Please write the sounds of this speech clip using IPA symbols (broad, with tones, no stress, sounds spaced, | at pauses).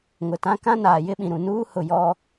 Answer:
ŋ ʊ˨ t ã˦ k ã˦ n aː˨ j ɪ˦ ɓ ĩ˨ ɾ ũ˨ n uː˦ h ʊ˨ j ɔ˦